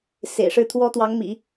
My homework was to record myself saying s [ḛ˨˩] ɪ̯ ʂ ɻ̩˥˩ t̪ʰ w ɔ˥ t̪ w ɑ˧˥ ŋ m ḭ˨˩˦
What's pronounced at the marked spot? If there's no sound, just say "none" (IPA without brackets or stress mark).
ḛ˨˩